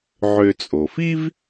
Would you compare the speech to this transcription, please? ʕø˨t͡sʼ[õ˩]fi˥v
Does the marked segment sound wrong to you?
yes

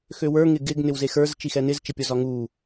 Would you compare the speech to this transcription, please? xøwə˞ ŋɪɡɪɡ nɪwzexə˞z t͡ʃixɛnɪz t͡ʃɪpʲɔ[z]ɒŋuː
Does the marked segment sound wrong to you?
no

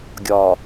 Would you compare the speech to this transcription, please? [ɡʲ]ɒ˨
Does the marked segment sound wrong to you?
no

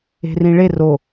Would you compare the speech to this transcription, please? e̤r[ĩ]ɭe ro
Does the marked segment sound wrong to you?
no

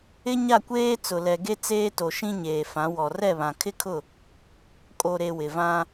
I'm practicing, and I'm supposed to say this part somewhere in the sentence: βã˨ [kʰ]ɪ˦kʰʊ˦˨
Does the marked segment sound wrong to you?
no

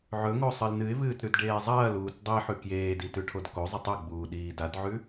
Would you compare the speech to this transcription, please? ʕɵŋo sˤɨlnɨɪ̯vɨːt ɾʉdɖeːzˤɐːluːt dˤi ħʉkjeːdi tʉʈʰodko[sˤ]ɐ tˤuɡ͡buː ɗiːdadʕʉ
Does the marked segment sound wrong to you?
yes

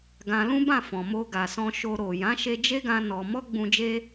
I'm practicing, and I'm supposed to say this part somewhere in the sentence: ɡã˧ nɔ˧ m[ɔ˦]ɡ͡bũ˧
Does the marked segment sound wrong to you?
no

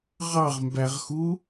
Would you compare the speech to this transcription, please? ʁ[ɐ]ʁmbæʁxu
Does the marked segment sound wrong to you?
yes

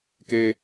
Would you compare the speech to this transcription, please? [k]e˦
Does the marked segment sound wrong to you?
no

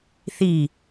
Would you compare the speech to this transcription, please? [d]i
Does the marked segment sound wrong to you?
yes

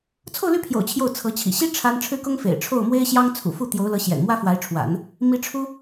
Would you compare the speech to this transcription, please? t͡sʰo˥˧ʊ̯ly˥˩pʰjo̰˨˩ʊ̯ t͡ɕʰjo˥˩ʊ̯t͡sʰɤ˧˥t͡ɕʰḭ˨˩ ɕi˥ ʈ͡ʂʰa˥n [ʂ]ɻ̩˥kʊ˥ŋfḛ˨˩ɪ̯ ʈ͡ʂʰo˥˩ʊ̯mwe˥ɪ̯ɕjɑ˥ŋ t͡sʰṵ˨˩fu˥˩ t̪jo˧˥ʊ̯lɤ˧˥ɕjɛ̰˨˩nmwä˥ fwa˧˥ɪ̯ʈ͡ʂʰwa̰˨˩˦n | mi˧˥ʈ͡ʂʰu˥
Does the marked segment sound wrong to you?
yes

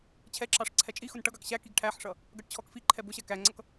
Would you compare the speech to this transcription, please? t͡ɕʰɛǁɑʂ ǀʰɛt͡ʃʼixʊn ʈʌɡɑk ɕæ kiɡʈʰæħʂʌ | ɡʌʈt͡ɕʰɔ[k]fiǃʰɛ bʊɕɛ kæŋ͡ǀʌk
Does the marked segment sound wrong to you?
no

